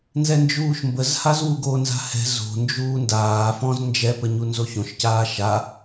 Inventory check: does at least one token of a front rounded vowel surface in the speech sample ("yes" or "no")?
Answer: no